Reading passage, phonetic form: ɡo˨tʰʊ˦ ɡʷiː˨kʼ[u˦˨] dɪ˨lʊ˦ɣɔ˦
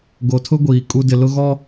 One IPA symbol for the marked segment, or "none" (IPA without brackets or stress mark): u˦